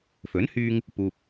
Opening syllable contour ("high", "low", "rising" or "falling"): rising